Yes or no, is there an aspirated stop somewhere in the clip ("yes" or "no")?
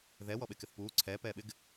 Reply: yes